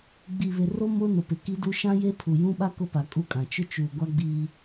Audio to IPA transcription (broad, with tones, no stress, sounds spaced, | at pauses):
ɡ͡b i˨ β ɪ˨ r o˦ m ʊ˦ n ʊ˨ p ɪ˨ k i˦ d u˦ ʃ ã˦ j e˦ pʰ u˨ j ũ˦ ɓ a˦ k ʊ˦ p a˨ kʼ u˦˨ kʼ ã˨ t͡ʃ ʊ˦ t͡ʃ uː˨ ɡʷ a˦ ɡ͡b iː˦